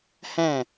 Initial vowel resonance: nasal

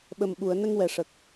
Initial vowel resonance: oral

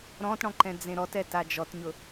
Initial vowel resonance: nasal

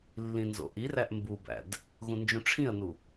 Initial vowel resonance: nasal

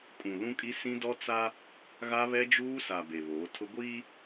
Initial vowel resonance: nasal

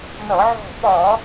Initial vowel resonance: oral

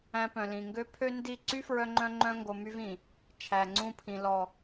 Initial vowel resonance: nasal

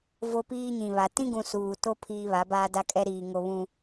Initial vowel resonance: oral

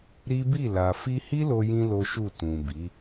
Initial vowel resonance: oral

